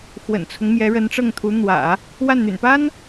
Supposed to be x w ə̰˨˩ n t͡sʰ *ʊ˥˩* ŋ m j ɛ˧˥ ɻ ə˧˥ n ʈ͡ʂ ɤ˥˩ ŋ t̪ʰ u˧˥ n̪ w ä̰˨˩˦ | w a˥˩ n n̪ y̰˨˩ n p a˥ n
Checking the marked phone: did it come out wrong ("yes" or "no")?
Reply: yes